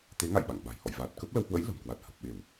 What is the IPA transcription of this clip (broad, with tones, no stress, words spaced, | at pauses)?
t̪e˨˦ŋa̰˧˨j ɓa̰˧˨ŋɓa̤˨˩jhɔ̰˧˨j vaː˨˩t̚kə˦˥p̚ lə˧whwə̰˧˥j lə̤˨˩mkwa˨˩t̚ hə˨˩p̚ɓe˧˩˨w